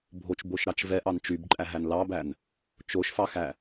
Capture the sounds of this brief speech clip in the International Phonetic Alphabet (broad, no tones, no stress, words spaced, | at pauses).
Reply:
bʱot͡ʃboʃɾɑt͡ʃ vɛʔɑn t͡ʃybǃʼæɦæn lɑbæn | t͡ʃoʃfɑxæ